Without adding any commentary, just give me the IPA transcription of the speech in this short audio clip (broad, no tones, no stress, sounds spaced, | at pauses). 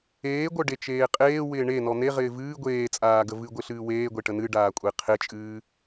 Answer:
eː ɡʷ œ ɖ e t͡ʃ eː qʼ eː w ɪː ɳ e n ɔ n̪ e ʁ ɪː v ɨː ɡʷ eː t͡sʼ aː ɡ ə v ɨ ɡʷ ɪ ɬ ɨː w eː ɡʷ e ʈ ə n ɨ ɖ aː kʷʼ e qʰ e t͡ʃʼ ɨː